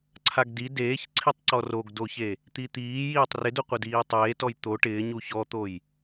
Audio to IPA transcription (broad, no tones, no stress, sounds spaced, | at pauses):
ǀʰ a ɡ d i d eː ç ǀʰ i tˤ ǀ ɔ r o ɡ d o ç e | t̪ i t̪ iː j iː tˤ r ɪ d u qʷ e d iː tˤ eː t ɔ j t̪ o ʈ ɪː ɲ u ç ɔ t̪ o j